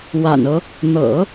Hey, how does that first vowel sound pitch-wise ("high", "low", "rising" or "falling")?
low